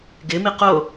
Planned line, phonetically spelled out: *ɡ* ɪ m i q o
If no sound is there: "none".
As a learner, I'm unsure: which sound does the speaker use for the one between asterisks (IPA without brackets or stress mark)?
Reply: ɡ